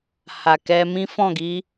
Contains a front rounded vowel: no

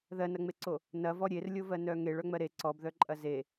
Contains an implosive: no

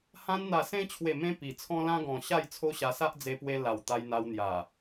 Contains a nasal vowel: yes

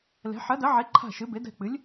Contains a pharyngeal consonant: yes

